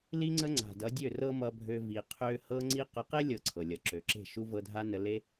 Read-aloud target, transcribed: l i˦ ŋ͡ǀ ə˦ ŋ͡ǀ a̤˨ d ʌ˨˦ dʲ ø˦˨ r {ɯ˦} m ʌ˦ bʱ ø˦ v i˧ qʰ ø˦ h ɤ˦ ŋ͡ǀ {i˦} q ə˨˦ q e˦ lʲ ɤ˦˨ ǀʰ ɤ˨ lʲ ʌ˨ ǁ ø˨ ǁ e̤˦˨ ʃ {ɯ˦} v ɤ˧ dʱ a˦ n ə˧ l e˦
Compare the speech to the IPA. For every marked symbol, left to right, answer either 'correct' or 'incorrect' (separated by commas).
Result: incorrect, correct, incorrect